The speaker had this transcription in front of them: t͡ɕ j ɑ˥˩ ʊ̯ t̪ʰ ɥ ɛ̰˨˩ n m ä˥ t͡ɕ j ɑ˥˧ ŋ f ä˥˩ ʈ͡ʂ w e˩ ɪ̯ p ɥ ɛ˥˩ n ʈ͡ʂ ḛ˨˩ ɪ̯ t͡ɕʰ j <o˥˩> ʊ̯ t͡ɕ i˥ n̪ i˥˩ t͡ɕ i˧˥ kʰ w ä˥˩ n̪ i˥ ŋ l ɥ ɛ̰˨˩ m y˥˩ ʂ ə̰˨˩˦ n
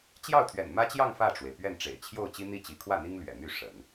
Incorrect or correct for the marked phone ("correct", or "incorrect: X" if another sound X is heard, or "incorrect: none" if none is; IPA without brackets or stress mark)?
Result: correct